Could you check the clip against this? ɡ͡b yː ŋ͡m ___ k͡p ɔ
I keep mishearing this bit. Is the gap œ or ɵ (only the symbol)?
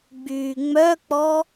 œ